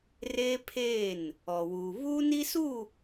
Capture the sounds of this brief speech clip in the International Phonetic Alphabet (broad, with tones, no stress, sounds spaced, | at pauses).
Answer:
r eː˦ pʰ eː˦˨ n | ɔ˨ w uː˨ β uː˦ n i˦ s u˦˨